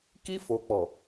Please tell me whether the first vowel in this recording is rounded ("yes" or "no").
no